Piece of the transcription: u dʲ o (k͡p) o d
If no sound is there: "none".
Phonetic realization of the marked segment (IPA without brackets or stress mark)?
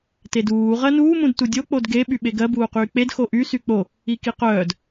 k͡p